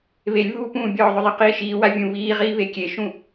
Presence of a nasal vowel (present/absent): present